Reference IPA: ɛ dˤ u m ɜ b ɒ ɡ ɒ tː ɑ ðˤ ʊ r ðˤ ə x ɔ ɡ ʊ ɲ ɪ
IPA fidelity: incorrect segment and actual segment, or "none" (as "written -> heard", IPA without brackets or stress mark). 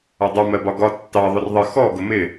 ɲ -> m